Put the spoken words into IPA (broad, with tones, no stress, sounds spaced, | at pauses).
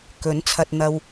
k ɵ˨˥ n t͡sʰ ɐ˧ t̚ n̪ ɐ˧ w